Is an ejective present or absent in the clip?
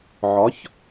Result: absent